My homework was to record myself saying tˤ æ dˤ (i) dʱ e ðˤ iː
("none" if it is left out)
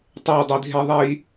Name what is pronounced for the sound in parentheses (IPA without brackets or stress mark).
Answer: i